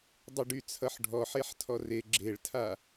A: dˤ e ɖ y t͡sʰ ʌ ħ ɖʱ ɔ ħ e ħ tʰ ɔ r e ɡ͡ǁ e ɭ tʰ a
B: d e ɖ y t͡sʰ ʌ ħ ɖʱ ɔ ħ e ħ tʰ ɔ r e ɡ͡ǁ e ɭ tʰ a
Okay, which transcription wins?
A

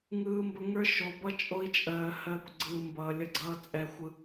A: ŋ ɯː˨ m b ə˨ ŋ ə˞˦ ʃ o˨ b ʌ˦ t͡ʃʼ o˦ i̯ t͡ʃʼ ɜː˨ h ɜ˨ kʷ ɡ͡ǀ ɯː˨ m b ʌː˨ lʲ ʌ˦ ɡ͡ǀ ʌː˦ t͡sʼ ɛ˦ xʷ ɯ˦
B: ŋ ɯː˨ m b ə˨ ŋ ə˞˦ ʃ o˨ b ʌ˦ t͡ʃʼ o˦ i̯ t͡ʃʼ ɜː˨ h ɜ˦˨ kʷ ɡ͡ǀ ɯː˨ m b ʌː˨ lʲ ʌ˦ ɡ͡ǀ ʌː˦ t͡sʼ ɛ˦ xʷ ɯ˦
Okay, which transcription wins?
B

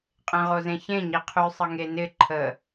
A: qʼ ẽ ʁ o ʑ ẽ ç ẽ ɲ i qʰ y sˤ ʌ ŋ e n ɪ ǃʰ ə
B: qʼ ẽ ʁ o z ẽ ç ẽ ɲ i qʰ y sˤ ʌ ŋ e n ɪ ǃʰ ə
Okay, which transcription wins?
B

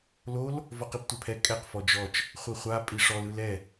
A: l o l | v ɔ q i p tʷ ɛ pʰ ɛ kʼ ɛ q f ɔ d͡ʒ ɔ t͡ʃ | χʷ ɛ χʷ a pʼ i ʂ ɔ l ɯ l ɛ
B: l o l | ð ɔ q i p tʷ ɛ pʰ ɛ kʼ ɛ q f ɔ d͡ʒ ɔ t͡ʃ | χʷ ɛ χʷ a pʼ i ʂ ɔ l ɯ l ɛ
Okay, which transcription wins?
A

